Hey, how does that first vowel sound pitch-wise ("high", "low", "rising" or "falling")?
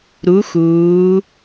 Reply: rising